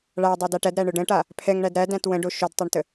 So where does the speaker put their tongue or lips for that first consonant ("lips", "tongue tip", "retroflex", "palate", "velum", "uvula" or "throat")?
retroflex